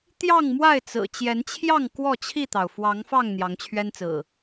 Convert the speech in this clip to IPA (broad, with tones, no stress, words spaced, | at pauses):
t̪jɑ˥˨ŋmwa˥˨ɪ̯t͡sɹ̩˨˩ t͡ɕjɛ˨˦nt͡ɕʰjɑ˥˨ŋ kwɔ˥˨t͡ɕʰi˥˨t̪ɑ˩ʊ̯ fwɑ˨˦ŋfɑ˥˨ŋ n̪jɑ˨˦ŋt͡ɕʰɥɛ˦nt͡sɹ̩˨˩